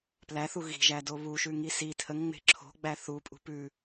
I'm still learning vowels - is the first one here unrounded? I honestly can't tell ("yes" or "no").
yes